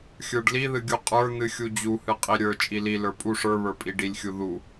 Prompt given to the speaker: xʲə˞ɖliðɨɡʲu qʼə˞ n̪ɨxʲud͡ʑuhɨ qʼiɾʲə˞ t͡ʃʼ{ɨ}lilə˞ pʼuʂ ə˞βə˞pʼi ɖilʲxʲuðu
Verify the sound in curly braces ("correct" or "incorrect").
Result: incorrect